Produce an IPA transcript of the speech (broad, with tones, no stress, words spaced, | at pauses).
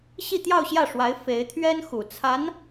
ɕi˥˧t̪jɑ˥˧ʊ̯ɕjä˥˩ʂwa˧˥ɪ̯ fe˧˥ɪ̯t̪ʰɥɛ˥nxu˨˩ t͡sʰa˧˥n